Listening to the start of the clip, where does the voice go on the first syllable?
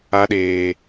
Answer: high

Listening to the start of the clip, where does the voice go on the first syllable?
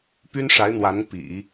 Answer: high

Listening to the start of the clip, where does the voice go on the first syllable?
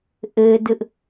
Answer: high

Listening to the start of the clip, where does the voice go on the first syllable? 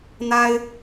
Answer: high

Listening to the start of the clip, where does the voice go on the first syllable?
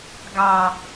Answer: low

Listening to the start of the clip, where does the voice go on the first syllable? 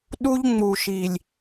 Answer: high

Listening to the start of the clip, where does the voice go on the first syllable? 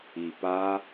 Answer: low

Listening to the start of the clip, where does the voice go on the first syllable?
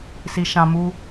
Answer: high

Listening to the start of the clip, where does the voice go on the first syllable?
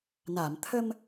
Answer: low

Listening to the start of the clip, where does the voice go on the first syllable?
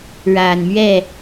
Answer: low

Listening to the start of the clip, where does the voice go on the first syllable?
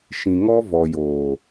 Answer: low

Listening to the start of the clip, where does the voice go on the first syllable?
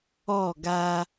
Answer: falling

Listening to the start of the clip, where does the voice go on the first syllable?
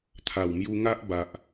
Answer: low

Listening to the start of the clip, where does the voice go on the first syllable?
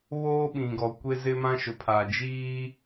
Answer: high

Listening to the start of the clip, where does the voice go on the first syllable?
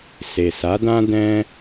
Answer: low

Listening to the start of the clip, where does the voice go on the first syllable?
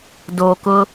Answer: low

